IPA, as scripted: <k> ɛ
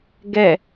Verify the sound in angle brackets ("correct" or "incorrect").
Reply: incorrect